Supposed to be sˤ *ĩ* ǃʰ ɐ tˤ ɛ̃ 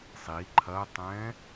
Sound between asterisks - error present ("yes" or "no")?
yes